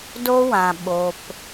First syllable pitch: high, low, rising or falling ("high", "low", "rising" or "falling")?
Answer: high